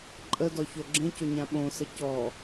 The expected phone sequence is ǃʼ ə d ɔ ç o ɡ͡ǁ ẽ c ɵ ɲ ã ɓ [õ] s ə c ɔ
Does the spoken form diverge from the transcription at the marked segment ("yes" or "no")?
no